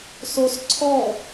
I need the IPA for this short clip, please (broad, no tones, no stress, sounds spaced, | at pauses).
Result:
s o s ǀʰ ɔ